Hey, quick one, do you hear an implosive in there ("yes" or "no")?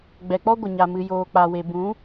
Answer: no